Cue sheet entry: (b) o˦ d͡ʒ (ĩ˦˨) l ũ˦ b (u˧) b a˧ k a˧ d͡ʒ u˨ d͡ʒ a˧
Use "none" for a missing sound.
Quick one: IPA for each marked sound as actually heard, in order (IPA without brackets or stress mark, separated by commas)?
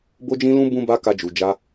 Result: b, ĩ˦, ũ˧